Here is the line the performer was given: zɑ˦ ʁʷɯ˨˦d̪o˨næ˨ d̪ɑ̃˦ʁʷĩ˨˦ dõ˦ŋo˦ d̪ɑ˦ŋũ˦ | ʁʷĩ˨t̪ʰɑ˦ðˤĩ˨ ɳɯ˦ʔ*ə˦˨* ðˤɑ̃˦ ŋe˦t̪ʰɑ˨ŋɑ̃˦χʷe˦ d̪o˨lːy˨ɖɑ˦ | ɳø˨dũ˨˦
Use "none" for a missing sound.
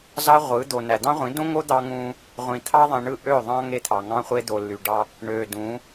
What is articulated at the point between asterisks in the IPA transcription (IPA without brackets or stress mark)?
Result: ø˦˨